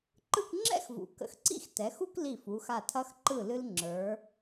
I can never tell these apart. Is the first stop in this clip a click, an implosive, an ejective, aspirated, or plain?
click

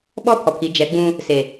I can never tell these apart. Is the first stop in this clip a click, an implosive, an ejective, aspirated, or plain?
implosive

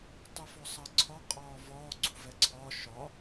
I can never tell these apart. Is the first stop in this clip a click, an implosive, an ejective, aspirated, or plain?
plain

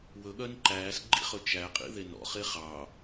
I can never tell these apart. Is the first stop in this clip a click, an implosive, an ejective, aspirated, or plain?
implosive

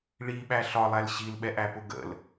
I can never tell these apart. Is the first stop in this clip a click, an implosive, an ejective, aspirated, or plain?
implosive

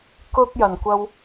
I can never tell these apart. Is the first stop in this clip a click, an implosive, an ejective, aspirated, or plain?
plain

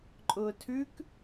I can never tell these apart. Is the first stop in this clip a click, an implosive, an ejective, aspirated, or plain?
click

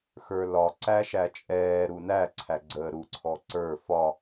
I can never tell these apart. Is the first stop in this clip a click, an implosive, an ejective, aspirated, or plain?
click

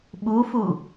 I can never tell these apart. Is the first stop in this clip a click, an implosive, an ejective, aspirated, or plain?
implosive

